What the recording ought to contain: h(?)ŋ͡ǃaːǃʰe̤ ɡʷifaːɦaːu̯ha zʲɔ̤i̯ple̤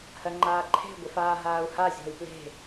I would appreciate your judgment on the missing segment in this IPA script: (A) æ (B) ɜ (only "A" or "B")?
B